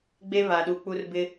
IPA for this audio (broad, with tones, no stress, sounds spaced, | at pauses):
ɡ͡b e˦ β a˨ ɗ u˨˦ k͡p u˦ r b ɪ˦